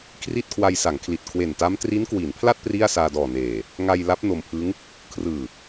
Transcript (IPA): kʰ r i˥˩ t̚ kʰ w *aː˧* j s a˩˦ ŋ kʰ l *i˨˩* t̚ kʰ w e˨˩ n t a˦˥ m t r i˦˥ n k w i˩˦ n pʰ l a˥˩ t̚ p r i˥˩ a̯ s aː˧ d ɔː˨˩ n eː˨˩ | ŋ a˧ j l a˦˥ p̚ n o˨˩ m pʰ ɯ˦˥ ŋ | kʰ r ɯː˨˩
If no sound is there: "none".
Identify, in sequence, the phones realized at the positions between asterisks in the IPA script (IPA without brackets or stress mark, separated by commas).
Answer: a˧, i˨˩